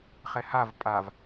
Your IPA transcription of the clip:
χ ɛ h a v pʼ a v

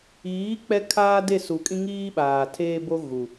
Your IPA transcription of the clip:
iː˨˦ k͡p ɛ˦ kʰ aː˦ d e˦˨ s u˨ kʼ ĩ˦ ŋ iː˦ ɓ aː˨ tʰ eː˦ b o˦ ɣ u˨

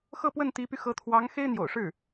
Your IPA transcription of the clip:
x ɤ˥˧ p w ə˥˩ n t̪ i˧˥ p y˧ x ɤ˧˥ t̪ʰ w ɑ˧˥ ŋ x e˥ ɪ̯ n̪ j o̰˨˩ ʊ̯ ʂ ɻ̩˥˩

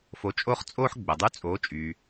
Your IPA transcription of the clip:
f o˨˥ t͡ʃʼ o˥ χ t͡sʼ oː˥ ħ ɡ͡b ɛ˩ dˤ y˨˥ t͡sʼ oː˩˧ t͡ʃʼ yː˩

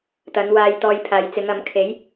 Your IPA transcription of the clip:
t̪ ɐ˨˧ n w aː˧ j t̪ ɔː˧ j pʰ aː˨ j t͡s ɪ˨˧ ŋ ɐ˨˧ m kʰ e˨˧ j

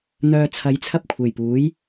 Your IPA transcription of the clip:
n̪ œː˨ t͡sʰ ɐ˨˥ j t͡sʰ ɐ˧ p̚ kʷʰ e˨˩ j p uː˨˥ j

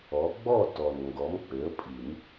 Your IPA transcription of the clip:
ɔ˩˥ ɡ͡b ɔ˥˩ t ɔ˨˩ n ŋ ɡ ɔ˩˥ m k͡p ø˩˥ ə̯ pʼ i˨˩˦ m

